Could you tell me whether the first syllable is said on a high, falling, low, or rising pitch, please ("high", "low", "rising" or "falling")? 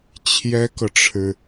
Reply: high